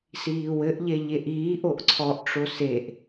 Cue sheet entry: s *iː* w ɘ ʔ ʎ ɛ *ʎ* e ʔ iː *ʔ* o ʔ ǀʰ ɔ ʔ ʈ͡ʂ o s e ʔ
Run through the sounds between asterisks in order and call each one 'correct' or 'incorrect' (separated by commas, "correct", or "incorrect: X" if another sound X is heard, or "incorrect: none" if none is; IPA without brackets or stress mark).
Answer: correct, correct, correct